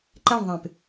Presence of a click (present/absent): present